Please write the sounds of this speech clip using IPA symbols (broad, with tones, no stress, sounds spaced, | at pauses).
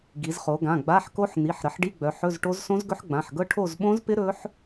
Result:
ɡ i˩˧ z χ o˩˧ ɡ ã˩˧˩ ɡ͡b a˧˥˧ ħ k o˦˥ ħ n̪ i˩˧˩ ħ ɾ ə˩˧ ħ ɖ i˧˥˧ ɡ͡b œ˩˧ ħ ɵ˧˥˧ z ʈ o˦˥ z s õ˦˥ z ɡ ɵ˦˥ ħ ɡ͡b ã˩˧˩ ħ ɡ ɤ˦˥ ʈʰ o˦˨ z ɓ õ˦˥ z p ɪ˦˥ ɾ ɵ˦˥ ħ